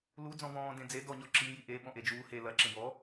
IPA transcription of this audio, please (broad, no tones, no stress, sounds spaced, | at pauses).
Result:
l u d͡z ɔ̃ v ɔ̃ː d ẽ d͡z e d ɔ ɲ ɔ ǁ i j i ʔ e ɓ ɔ̃ ʔ e d͡ʒ uː h e l ɐ ǁ ẽ b ɔ